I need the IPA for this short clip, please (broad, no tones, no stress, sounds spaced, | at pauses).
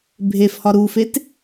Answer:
bʱ e f h ɒ ɾ u f e t